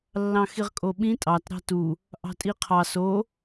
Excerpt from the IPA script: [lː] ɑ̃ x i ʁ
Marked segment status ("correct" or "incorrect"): correct